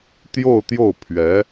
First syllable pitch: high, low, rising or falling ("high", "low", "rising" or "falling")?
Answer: falling